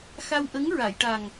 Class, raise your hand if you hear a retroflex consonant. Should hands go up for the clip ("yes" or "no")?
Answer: yes